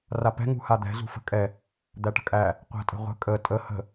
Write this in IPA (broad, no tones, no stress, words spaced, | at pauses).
rapɛ̤ ŋṳhad̪ɛ̤ zṳfə̤kʼɛ | d̪æʈə̤kʼæ | qʷæ̤tʼə̤ʁʷə̤ kʼə tʼə hə̤